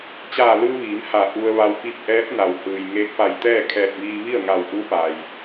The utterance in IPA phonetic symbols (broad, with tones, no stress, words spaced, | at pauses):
t͡ɕaː˧˩lɯː˧ ʋiː˩˧mha˧˩ ʔu˧ə̯ʋa˧w pi˧p̚ʔɛː˧˥p̚ na˩whɯː˩j ŋeː˧k̚pa˧˩j t̪ɛː˥˨kʰɛː˧˩t̚ʋiː˧ ʋi˥˨ə̯ŋa˧˩wʔu˧˥ pa˩j